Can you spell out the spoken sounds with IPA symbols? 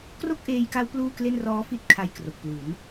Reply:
k r o˥˩ k̚ ʔ eː˧ j k a˦˥ w p l uː˥˩ k l e˥˩ n r ɔː˦˥ f i˥˩ t̚ kʰ a˧ j k r o˨˩ k̚ p l u˩˦ n

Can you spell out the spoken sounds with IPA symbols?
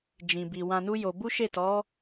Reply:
d͡ʒ ĩ˨ b i˨ w ã˧ n u˦ j o˧ b u˦ ʃ e˦˨ t ɔ˨˦

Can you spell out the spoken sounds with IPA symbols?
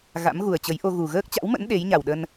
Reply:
ɣ a̰˧˥ m ɣ u˨˩ ə̯ t͡ɕ ə˨˦ j ʔ o˧ ɣ u˨˩ ɣ əː˦˥ k̚ t͡ɕ a̰˧˥ w m ə̰˧˥ n ɗ e˨˦ j ɲ a˨˩ w ɗ ə˧ n

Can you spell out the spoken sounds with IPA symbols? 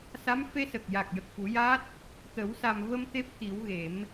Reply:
s a˧˥ m f e˧ s ə˨˩ k̚ j a˨˩ k̚ j ə˨˩ k̚ f u˨˩˦ j a˦˥ t̚ | t̪ ə˨˩˦ w s a˨˩ m v ə˧ m t̪ e˦˥ p̚ t̪ i˨˩˦ w ɣ e˨˩˦ m

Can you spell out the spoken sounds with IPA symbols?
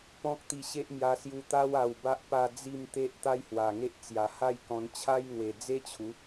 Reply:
p ɔ̃˦ k̚ t̪ i˧ ɕ e˦ ʔ m j a˧ s j u˧ t̪ a˦ w a˧ w b a˦ ʔ p a˥˧ d͡z i˥˧ m t̪ e˦ ʔ t̪ a˦ j h w a˨˩ ŋ e˦ ʔ t͡s j a˨˩ h a˥˧ j k ɔ̃˧ n t͡ɕʰ a˦ j ŋ w e˨˩ d͡z e˦ t͡ɕʰ u˨˦

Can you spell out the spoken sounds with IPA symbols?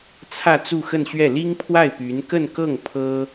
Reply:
t͡sʰ ä˥˧ t͡s u˥˧ x ə˥˧ n ɕ ɥ ɛ˥˩ l i˥ ŋ pʰ w a˥˩ ɪ̯ p y˧˥ n k ə˥˧ n k ɤ˥˩ ŋ pʰ ɤ˥

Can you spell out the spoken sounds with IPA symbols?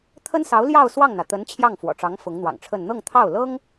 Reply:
t̪ʰ ə˥ n s ɑ˧˥ ʊ̯ l j ɑ˥˧ ʊ̯ s w ɑ˥˩ ŋ n̪ ä˩ t̪ ə˧˥ n t͡ɕʰ j ɑ˥˩ ŋ f w ɔ̰˨˩ ʈ͡ʂ ɑ˧˥ ŋ f ʊ˧˥ ŋ n̪ w ɑ̰˨˩ ŋ ʈ͡ʂʰ ə˥˧ n n̪ ɤ˥˧ ŋ t̪ʰ ɑ˥˩ ʊ̯ l ɤ˥ ŋ

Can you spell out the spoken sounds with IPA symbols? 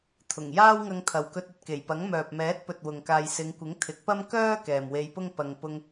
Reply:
t̪ʰ ʊ˨˩ ŋ j aː˥ w ŋ ɐ˧ ŋ t̪ʰ ɐ˨ w k ɵ˧ t̚ ɐ˨ t̚ k e˨˩ j p ɐ˨˥ ŋ m œː˨ p̚ m ɛː˨˥ t̚ p ɵ˨ t̚ w ʊ˨ ŋ k aː˨ j s ɪ˨˧ ŋ kʷ ɪ˨˥ ŋ t̪ʰ ɪ˨˥ k̚ p ɐ˥ m k œː˥ k ɛː˨ m w e˧ j p ʊ˥ ŋ p ɐ˧ ŋ p ʊ˧ ŋ

